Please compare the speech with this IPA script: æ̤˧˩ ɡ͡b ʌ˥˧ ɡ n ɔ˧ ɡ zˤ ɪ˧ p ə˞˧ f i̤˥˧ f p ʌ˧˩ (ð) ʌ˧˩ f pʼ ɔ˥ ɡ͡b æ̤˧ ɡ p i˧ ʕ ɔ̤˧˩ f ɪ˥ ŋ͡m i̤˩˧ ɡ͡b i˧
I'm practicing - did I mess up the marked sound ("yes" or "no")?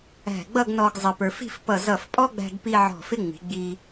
yes